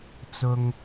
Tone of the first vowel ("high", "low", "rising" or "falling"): low